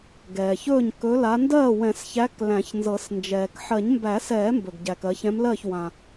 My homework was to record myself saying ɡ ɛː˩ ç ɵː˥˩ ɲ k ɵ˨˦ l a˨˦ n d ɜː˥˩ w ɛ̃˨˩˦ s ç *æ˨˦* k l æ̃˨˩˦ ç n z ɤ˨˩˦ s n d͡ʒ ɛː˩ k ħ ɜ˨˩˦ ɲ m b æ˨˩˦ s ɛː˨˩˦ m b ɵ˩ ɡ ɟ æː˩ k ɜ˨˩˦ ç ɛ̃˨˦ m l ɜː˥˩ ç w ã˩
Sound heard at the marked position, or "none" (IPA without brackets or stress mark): æ˨˦